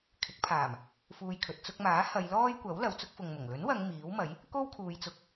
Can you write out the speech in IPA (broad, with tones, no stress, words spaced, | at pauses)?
kʰɪ˨˥k̚pʰaː˨˩m | fuː˧jkʰɵ˨t̚ t͡sʊ˧k̚maː˨˥ hɐ˨˧j lɔː˥jkʷɐ˨˥w lɐ˨wt͡sʊ˥k̚fʊ˨ŋmʊ˨˩ŋ lɵ˨˥nwɐ˨˧ŋ miː˨˥wmɐ˨˥j | ko˥wkʰuː˨˧j t͡sʊ˧k̚